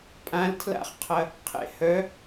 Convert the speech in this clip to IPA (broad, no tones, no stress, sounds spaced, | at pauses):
pʼ ã l tʰ l a̰ χ qʰ ɐ | qʰ ḛ h œ